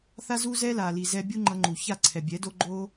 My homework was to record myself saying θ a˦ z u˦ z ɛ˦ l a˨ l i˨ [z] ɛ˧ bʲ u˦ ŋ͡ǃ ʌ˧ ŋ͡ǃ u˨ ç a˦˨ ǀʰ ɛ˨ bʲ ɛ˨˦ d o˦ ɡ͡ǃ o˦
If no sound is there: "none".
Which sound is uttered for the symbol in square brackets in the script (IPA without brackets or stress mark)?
z